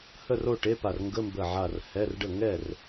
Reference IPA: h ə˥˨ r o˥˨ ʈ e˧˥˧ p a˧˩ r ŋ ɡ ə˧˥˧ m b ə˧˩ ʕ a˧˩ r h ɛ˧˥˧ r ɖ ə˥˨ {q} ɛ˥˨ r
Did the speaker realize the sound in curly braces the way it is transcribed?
no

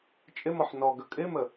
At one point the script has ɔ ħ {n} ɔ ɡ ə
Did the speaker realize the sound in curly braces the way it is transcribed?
yes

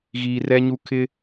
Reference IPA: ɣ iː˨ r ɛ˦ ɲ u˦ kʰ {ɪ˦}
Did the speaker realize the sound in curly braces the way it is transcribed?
yes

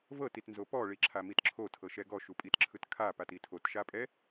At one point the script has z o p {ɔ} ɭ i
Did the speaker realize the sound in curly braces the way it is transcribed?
yes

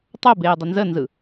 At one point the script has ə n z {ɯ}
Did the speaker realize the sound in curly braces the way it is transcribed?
yes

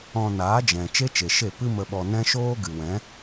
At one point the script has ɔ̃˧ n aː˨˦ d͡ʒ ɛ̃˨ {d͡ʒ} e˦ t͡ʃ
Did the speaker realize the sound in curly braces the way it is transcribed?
no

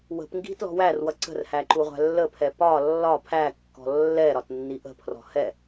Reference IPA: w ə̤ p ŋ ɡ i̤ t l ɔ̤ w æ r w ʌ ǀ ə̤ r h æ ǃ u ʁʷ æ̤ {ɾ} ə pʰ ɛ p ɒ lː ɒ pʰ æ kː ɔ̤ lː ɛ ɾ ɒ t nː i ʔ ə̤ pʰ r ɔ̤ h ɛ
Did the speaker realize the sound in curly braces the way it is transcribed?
no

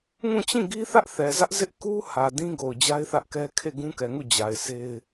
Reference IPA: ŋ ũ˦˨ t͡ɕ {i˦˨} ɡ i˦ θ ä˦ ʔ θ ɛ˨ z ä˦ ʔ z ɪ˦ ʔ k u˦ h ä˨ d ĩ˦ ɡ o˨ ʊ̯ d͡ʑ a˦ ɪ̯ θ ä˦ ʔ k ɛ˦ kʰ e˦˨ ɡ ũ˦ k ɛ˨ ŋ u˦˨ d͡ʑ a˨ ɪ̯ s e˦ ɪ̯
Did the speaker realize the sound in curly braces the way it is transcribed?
no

